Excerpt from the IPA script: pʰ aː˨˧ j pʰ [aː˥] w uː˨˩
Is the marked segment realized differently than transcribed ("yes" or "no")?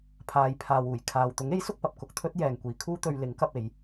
yes